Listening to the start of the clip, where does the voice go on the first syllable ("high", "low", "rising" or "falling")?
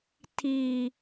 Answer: low